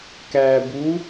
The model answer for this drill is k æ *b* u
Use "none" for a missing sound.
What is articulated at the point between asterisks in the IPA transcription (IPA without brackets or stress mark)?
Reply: b